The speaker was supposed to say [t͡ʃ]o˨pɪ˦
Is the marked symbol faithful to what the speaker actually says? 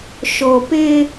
no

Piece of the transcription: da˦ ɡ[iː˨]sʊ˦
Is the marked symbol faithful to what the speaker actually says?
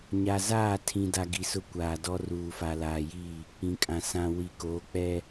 no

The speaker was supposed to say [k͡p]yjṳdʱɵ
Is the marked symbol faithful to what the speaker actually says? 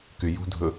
no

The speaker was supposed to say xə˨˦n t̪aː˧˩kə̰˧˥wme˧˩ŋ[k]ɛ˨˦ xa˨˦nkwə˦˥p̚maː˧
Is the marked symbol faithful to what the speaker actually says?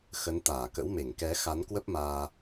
yes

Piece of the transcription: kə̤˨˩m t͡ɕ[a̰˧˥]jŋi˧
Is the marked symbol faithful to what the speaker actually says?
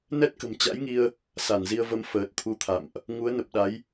yes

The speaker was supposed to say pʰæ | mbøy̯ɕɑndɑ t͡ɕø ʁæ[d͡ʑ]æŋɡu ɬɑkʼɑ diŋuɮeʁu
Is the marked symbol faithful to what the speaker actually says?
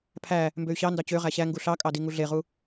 no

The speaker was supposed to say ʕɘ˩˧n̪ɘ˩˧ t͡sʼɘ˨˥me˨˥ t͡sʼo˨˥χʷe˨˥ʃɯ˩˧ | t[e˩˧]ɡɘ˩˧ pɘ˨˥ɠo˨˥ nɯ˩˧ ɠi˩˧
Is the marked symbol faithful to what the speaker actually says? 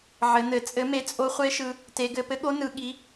yes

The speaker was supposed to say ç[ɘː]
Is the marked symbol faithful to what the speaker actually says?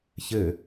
no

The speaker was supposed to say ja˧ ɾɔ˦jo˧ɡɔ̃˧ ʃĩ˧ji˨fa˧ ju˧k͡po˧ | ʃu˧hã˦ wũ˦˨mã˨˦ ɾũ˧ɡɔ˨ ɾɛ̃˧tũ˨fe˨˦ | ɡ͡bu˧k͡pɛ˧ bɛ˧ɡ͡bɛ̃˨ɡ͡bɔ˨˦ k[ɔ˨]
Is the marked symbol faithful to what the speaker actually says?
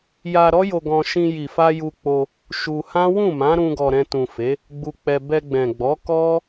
no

